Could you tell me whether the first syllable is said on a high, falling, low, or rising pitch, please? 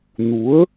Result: rising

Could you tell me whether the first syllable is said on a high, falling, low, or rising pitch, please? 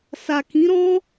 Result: low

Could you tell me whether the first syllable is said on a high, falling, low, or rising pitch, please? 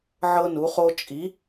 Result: high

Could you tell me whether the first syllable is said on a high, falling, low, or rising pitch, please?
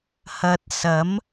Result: low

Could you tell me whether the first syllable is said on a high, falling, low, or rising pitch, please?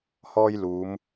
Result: high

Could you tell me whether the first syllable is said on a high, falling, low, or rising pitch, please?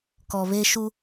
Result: low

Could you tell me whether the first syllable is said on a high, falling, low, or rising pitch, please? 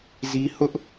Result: high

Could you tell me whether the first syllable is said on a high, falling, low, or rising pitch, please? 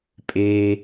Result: high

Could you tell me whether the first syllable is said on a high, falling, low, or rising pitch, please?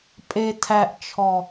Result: low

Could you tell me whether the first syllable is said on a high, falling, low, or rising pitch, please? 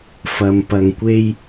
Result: low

